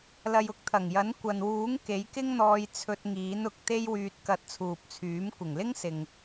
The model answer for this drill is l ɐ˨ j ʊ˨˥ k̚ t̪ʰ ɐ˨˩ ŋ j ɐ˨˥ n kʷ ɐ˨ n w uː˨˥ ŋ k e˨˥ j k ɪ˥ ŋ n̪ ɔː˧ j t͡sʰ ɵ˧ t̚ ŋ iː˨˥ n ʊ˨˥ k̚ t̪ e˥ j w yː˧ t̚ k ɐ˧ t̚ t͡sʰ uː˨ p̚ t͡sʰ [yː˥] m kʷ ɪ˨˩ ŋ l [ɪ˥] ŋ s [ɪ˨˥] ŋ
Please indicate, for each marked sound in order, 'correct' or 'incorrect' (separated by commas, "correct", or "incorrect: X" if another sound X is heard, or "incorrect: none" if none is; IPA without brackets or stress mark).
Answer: incorrect: yː˨˥, correct, incorrect: ɪ˨